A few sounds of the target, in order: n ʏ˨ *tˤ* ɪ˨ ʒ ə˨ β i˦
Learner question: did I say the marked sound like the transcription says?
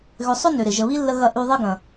no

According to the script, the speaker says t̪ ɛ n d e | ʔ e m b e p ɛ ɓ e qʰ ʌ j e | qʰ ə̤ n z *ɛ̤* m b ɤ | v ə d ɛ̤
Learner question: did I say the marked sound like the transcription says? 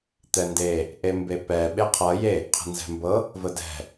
yes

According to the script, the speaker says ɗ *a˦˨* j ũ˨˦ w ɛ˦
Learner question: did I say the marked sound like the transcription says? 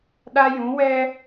no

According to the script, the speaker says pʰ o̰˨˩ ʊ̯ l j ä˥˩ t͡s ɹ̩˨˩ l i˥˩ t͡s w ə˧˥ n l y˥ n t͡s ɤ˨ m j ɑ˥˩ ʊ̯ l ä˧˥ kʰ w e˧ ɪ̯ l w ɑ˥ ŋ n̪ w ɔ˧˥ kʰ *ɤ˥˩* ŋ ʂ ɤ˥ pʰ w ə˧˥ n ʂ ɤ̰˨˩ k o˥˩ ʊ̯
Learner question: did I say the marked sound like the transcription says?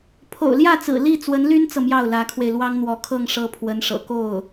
yes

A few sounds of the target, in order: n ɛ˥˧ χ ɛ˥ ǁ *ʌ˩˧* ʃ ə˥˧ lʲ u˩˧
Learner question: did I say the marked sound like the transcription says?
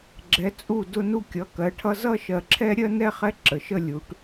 no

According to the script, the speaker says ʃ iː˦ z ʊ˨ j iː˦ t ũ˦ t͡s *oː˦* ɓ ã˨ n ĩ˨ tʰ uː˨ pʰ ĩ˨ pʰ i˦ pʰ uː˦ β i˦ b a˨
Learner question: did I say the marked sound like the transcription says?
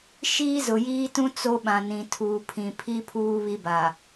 no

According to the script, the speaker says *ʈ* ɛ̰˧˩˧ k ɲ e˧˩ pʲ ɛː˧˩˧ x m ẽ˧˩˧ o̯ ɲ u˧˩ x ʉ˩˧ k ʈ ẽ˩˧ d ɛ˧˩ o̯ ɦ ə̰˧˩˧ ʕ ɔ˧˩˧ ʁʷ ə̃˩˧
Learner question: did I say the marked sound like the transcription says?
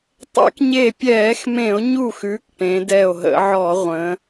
no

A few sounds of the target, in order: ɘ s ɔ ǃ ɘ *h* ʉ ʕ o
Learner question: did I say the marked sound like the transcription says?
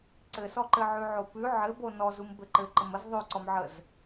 no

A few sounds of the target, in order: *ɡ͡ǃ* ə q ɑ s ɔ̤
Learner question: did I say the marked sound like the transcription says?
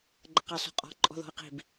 yes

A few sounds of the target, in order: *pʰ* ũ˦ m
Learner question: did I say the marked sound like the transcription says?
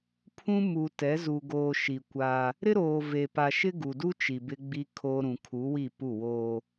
yes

